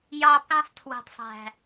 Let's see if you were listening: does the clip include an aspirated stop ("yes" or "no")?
yes